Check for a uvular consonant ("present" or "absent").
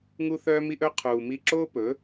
present